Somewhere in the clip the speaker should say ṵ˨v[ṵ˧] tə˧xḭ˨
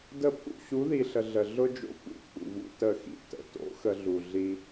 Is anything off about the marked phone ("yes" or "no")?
no